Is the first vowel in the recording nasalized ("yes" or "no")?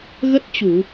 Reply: no